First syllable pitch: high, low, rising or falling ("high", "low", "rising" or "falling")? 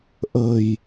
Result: low